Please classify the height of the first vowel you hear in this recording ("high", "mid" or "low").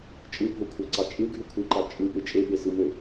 high